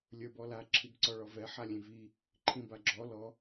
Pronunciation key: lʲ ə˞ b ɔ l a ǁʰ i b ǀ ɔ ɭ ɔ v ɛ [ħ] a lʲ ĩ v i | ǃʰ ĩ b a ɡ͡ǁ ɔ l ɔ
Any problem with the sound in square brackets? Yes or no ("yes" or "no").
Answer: no